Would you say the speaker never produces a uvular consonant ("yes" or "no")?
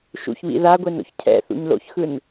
yes